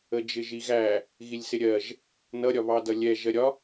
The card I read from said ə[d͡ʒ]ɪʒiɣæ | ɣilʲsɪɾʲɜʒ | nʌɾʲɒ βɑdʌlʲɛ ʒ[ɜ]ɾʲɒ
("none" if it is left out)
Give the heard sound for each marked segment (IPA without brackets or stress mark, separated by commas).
d͡ʒ, ɜ